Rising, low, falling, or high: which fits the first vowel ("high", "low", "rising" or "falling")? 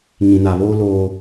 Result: low